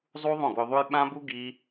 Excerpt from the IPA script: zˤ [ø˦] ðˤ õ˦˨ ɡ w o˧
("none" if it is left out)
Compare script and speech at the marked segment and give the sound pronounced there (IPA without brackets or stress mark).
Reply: u˦